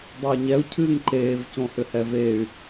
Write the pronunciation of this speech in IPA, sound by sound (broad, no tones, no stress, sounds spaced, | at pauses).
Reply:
dˤ o y̯ ɲ ɛ u̯ cʰ ɨː ŋ ǃ eː v c õ h ʏ h ɛ v e y̯